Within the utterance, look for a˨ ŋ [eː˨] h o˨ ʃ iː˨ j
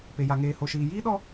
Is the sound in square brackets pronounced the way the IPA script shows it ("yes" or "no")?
yes